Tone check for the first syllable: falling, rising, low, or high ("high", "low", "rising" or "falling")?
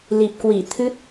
low